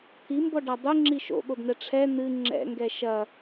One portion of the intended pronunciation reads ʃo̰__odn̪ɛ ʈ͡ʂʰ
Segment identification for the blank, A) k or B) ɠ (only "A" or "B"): B